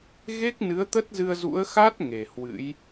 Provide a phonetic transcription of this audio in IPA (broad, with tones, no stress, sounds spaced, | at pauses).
ɣ e˦˥ k̚ n ɨ˨˦ ə̯ t̪ ə˦˥ t̚ z ɨ˧ ə̯ z ṵ˧˥ ə̯ x a˦˥ t̚ ŋ e˨˩ h w ɨ̰˧˥ j